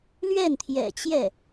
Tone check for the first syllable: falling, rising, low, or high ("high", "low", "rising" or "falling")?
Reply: falling